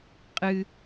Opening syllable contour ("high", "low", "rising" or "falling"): high